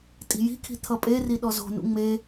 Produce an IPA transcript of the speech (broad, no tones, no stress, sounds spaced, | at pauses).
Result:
tʼ i̤ j i̤ kʰ i̤ t̪ʰ ʌ pʼ e r i ɗ ɔ z o̤ n ṵ ŋ͡m e